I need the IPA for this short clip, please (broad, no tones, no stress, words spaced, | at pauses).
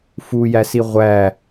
fujæsi ʁʷæ